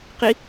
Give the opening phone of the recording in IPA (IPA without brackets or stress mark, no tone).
q